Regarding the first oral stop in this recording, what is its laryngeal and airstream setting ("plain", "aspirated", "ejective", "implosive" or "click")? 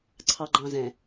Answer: click